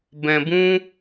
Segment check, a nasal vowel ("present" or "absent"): present